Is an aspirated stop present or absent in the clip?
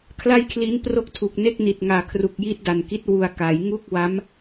present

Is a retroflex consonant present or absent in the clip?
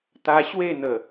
absent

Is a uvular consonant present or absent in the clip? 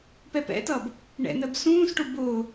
absent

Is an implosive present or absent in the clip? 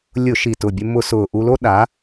present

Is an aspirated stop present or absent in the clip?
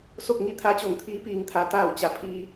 present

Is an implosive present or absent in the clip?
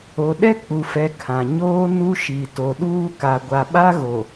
present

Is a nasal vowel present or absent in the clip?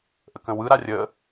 present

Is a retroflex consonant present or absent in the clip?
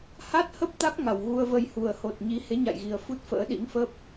absent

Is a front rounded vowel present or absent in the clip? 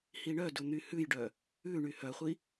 present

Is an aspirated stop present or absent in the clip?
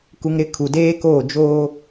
present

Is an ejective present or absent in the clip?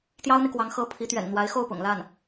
absent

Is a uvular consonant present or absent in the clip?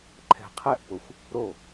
present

